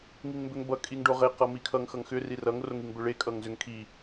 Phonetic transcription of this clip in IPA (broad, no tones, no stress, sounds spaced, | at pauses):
ŋ i ŋ m b ʏ ŋ b ʌ kʼ i ŋ ɖ o ʁ e q ʌ m i kʰ ʌ ŋ x ʌ ŋ x ʏ r i r ʌ ŋ r o ŋ i ŋ b ʏ ɭ e kʼ ʌ ŋ z ʏ ŋ kʰ i